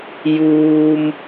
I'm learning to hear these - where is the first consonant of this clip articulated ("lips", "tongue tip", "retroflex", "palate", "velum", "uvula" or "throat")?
palate